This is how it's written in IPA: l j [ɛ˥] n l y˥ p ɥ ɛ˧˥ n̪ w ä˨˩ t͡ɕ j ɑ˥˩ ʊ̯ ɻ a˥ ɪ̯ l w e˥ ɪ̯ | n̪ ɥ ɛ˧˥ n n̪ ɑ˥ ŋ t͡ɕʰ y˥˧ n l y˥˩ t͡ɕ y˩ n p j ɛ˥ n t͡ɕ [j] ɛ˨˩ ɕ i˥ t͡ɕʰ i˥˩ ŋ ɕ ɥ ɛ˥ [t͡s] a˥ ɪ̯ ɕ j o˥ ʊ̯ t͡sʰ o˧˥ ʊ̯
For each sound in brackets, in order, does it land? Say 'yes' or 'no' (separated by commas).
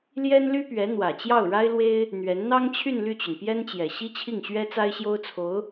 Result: yes, yes, yes